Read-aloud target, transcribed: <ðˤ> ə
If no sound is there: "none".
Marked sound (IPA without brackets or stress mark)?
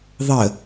ðˤ